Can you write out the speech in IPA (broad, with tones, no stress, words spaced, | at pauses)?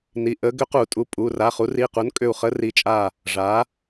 ni˩˧˩ ʔə˧˥ ɡʏ˧˥qu˨˩˦tʼu˩˧˩ pʼu˩˧˩ ra˩˧˩χu˩˥ri˩˧˩qu˩˥n kʼʏ˧˩u̯χə˧˥ri˩˥t͡ʃʼa˧˩ | ʐa˩˥